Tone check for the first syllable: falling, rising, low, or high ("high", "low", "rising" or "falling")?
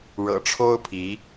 low